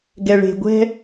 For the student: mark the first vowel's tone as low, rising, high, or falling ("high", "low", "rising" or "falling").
low